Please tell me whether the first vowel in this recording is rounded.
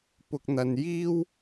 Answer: yes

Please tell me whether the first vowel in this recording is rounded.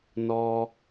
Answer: yes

